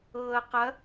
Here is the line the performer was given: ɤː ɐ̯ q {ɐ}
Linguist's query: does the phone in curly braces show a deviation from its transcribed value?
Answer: no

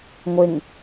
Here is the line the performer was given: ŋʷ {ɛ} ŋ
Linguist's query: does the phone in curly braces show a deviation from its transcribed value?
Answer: yes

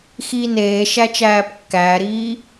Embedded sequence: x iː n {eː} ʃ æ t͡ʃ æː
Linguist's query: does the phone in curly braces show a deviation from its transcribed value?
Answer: no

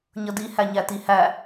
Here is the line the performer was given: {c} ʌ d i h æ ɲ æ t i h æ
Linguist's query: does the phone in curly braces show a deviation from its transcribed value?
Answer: yes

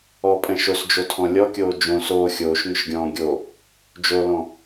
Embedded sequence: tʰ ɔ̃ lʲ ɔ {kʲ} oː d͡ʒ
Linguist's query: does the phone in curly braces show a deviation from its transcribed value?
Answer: no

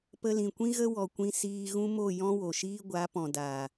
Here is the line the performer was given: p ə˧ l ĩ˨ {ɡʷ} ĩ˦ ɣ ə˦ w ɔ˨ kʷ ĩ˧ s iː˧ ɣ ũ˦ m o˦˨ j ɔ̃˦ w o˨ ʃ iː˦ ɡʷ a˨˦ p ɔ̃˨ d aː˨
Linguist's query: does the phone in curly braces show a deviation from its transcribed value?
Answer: yes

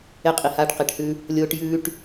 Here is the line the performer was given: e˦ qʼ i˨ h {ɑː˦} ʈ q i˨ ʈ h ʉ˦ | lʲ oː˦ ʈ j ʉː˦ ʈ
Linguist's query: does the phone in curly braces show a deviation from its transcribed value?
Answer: yes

